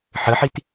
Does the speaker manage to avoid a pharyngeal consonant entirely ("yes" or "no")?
no